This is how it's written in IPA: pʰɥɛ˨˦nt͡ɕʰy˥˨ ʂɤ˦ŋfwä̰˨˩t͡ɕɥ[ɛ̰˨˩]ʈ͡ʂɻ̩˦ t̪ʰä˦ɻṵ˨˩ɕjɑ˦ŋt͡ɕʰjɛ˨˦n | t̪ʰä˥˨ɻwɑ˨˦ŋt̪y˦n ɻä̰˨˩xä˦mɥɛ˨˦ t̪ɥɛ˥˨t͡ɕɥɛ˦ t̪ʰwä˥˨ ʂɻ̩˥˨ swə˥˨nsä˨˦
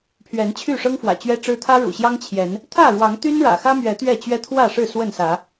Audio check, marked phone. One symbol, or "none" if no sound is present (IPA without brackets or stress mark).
ɛ˦